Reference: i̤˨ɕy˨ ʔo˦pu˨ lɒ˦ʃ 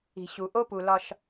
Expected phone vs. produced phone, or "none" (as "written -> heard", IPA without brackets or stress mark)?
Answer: y˨ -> u˨